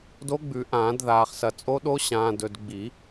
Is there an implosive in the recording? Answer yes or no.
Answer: yes